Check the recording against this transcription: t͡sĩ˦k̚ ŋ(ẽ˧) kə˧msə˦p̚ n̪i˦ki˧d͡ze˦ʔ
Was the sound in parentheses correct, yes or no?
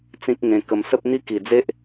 yes